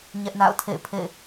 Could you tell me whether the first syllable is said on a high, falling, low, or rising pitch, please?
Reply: high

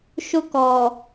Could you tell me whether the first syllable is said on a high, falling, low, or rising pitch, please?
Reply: high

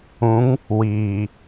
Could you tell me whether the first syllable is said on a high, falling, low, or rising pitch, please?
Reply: rising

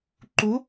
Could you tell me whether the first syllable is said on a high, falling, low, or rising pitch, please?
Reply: rising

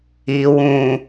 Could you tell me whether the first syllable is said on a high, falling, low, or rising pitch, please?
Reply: low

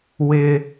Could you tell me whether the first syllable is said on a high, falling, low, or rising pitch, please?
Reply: high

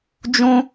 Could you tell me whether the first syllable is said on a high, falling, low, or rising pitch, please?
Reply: high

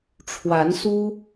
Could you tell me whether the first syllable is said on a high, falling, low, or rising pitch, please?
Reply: rising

